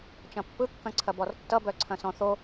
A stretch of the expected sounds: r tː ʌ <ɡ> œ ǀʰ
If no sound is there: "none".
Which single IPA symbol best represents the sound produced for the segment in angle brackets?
b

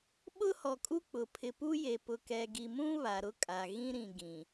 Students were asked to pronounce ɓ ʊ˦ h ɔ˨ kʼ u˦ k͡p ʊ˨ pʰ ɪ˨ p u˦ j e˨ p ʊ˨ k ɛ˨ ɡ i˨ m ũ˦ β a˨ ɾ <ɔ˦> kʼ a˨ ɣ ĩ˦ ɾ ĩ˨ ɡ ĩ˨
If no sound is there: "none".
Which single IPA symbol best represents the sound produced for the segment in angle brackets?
ʊ˦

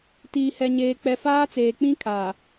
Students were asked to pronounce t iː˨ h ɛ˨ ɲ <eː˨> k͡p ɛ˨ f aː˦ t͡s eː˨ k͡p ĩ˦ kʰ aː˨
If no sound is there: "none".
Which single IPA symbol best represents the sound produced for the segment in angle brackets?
eː˨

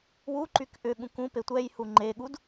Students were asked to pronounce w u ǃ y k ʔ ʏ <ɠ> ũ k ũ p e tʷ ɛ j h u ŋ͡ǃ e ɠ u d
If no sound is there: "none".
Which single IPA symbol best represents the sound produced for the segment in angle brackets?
ɠ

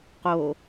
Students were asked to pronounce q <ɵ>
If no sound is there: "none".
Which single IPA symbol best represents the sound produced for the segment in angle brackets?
o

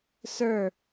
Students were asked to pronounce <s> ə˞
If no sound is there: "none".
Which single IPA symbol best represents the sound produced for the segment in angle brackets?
s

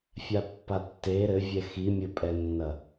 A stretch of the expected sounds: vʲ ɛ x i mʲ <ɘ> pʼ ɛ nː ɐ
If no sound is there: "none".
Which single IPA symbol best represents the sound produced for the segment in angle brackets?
ɘ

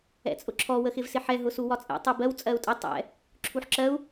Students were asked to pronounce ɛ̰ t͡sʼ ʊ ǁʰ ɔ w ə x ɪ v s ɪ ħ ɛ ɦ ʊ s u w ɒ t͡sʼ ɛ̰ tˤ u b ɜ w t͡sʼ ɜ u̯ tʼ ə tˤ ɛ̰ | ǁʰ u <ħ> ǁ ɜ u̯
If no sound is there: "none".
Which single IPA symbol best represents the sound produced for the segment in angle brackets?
ħ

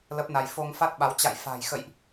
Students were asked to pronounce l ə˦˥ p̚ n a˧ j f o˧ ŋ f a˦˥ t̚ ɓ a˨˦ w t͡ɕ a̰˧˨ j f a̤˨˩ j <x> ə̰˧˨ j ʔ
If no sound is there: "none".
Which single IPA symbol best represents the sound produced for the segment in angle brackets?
x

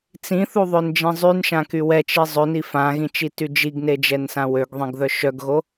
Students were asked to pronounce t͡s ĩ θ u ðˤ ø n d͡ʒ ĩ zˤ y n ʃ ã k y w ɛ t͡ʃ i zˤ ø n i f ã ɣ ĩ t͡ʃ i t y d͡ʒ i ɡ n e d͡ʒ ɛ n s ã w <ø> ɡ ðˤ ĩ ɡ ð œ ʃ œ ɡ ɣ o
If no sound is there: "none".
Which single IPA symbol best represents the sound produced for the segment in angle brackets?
ø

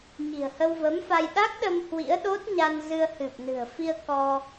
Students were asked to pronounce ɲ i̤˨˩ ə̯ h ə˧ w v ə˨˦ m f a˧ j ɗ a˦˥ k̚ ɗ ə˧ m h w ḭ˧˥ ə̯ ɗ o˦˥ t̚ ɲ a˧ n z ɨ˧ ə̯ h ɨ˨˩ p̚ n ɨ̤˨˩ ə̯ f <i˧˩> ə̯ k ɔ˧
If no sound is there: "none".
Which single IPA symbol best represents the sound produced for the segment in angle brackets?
i˧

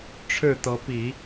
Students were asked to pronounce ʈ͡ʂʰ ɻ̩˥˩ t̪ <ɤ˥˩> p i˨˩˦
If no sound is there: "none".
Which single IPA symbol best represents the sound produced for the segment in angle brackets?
ɤ˧˥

